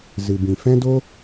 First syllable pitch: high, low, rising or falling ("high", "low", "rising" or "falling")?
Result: low